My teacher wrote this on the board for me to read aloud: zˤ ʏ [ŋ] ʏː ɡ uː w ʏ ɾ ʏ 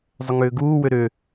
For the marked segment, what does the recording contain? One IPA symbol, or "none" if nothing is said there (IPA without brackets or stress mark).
ŋ